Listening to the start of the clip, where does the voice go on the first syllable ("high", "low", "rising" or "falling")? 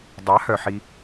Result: rising